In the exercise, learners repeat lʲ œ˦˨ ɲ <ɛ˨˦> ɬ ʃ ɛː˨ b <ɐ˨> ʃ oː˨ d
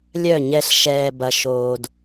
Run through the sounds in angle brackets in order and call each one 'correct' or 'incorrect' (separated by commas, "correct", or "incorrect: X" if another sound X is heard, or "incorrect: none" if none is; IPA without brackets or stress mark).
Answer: incorrect: ɛ˦, correct